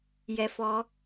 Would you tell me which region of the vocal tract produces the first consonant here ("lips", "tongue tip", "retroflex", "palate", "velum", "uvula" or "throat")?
palate